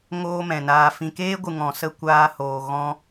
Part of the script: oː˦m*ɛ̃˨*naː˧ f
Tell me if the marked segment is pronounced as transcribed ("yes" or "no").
yes